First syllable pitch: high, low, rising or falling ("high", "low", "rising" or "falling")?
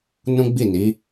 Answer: high